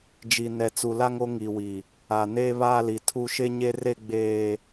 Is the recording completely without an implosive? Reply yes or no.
yes